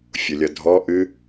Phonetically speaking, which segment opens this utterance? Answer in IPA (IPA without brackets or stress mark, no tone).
fʲ